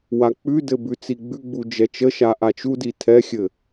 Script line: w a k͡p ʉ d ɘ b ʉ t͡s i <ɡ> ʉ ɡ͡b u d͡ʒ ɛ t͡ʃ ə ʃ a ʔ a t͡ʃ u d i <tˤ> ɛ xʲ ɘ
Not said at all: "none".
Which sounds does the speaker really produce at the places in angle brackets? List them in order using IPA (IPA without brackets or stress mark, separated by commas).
ɡ͡b, tʰ